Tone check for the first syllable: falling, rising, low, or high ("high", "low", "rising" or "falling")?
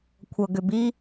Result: low